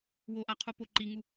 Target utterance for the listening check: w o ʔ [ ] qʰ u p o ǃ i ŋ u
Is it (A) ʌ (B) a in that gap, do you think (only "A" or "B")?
B